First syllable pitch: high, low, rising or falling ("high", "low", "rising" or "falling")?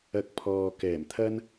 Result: rising